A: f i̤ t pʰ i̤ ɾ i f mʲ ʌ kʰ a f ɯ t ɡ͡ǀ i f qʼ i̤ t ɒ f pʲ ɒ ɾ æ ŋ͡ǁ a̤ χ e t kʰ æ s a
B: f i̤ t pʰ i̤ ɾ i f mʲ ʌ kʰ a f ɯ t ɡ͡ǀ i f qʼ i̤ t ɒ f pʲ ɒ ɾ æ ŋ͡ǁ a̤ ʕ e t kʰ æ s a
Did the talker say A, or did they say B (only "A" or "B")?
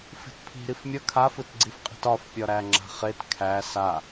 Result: A